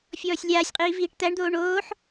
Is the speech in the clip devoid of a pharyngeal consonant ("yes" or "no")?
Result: no